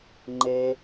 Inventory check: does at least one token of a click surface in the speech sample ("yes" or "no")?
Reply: yes